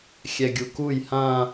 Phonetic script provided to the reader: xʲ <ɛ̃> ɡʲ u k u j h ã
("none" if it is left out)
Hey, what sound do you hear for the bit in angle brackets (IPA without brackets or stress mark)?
ɛ